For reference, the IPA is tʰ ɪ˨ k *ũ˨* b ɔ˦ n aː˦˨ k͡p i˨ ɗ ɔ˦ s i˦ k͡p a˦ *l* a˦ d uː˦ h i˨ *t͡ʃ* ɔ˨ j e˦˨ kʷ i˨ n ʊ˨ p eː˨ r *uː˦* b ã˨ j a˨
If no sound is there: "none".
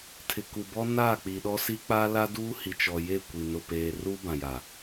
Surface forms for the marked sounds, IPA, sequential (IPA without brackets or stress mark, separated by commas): u˨, l, t͡ʃ, uː˦